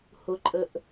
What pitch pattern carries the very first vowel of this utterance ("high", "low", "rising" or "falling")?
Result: low